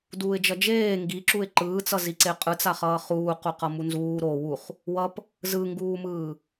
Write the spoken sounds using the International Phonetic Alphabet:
d uː ɪ̯ d͡ʒ ʌ d͡ʒ eː ŋ ɡ i ǁ u ɪ̯ ǃ ɯː t͡s ʌ z i ǀ e qʼ ɯ t͡s a χ ʌː χ uː q u q ʌ m u n z uː ɾ o w u χ | w ʌ p | z ɯ ŋ ɡ uː m ɯː

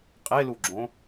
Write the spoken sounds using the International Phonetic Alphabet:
qʼ e l u ɡ͡ǁ õ

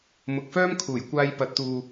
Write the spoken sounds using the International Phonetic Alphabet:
m ʊ˨ k̚ f œː˥ m kʰ uː˨˩ j kʷ aː˧ j p ɐ˨˥ t̚ t̪ uː˨

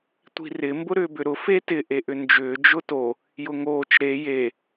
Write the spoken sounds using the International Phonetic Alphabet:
tʷ i̤ r ɪ m b ʊ ɾ ʏː b ʏ ɾ ʊ f e t ɪ ʔ e ʔ ʏ n d͡ʒ ʏː d͡ʒ ʊ t o | j ʊ ŋ oː t͡ʃ ɾ e j e

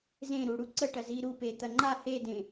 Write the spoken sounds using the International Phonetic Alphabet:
z ẽ ɾ u ɽ u ǀ ə ʈ ɐ z i ɾ u p e t̪ ɐ ŋ͡ǃ a h e d ẽ

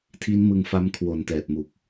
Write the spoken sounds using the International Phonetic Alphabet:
tʰ i˦˥ n m ɯ˧ ŋ f a˦˥ m kʰ w o˨˩ n t ɛː˨˩ t̚ m u˨˩ k̚

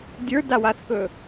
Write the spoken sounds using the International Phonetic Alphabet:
dʲ ə˞ d a w a θ k ɵ

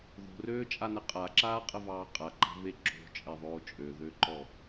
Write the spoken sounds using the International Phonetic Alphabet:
ð o̤ r øː t͡ʃʼ a n ə qʼ a ǁ aː qʼ ə v ɑː qʼ a ǃ a̤ v e ǁ o̤ t͡ʃʼ e ðˤ oː t͡ʃʼ ø ð ø ǃ ɔ

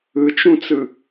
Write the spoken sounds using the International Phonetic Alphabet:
ɯ t͡ʃ ũ t͡s ɯ

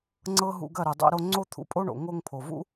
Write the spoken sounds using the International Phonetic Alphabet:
ŋ͡ǀ ɤ˦ ɦ ṵ˧ ɡ ɐ˦˨ ɾ u˨ dˤ o̰˦ ɾ o˦ ŋ͡ǀ o˦ t̪ʰ ṵ˧ pʼ o˦ ɳ o̰˨ ŋ o˧ ŋ pʰ o˨ v ṵ˦

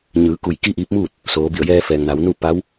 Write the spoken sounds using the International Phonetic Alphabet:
ɲ ɯː˩˧ k u˧˩ j k i˥˨ ʔ iː˧˥ p̚ m uː˥˨ t̚ | s oː˩˧ b i˧˩ ə̯ j ɛː˧ f ɛː˩ ŋ n a˩˧ w n u˥˨ p a˧˥ w

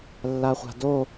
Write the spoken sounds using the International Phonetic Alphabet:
lː a χʷ a̤ d o

